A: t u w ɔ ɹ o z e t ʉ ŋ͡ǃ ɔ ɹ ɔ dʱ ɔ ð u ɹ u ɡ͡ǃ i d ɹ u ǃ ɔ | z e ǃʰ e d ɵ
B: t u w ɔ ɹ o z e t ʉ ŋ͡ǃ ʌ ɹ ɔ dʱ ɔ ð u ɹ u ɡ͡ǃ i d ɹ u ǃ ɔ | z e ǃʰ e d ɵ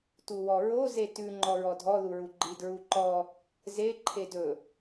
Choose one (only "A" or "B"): A